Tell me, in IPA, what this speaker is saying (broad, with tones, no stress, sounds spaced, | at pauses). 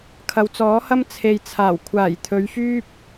kʰ ɐ˨˧ w t͡s ɔː˨˥ h ɐ˥ m t͡sʰ e˨ j t͡sʰ aː˨˩ w kʷʰ aː˨˩ j t̪ʰ ɵ˨˧ ɥ f yː˥ p̚